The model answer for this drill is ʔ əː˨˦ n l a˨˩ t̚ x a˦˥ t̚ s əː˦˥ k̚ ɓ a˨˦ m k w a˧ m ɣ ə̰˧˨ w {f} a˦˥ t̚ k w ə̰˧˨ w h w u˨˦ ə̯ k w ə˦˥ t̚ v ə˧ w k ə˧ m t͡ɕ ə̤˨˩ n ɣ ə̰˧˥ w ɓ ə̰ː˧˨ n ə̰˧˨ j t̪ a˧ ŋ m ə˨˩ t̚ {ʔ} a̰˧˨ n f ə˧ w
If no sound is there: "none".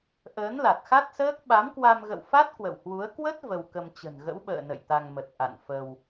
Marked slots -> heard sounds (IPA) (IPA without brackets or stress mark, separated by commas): f, ʔ